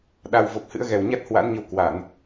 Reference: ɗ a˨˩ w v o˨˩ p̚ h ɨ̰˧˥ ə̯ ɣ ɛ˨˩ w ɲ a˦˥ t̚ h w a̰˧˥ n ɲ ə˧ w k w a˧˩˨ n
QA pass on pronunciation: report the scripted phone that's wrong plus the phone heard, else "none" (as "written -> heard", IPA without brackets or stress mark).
none